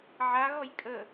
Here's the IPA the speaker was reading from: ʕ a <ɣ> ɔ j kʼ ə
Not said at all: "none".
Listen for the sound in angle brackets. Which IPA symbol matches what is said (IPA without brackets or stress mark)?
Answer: ɣ